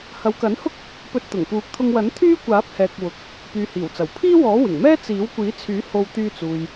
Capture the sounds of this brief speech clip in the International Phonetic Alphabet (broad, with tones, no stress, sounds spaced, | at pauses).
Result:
h ɐ˨˧ w k ɐ˨˥ n h ʊ˥ k̚ | p ɵ˧ t̚ t̪ ʊ˨˩ ŋ p uː˨˥ k̚ t̪ʰ ʊ˧ ŋ w ɐ˨˥ n t̪ʰ yː˥ kʷ aː˨˥ p̚ h ɛː˨ k̚ w ʊ˨ k̚ | p yː˨ h iː˨˩ w t͡s ɐ˨˩ w pʰ iː˥ w ɔː˨˥ w ɪ˨˩ ŋ m ɛː˥ t͡s iː˨˥ w kʷ iː˨˥ t͡sʰ yː˨˥ h o˧ w t̪ yː˧ t͡s uː˨ j